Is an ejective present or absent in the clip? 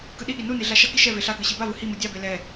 absent